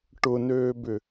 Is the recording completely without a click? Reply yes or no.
yes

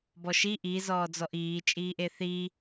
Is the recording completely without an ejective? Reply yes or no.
no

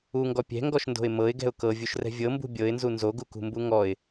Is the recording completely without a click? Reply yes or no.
yes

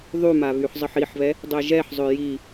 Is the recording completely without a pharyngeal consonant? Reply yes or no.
no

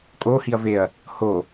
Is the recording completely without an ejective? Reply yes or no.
no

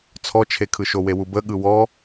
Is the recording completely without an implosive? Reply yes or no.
no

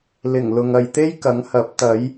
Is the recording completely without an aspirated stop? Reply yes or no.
yes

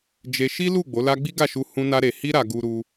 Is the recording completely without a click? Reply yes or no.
yes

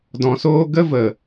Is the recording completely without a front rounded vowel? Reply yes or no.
yes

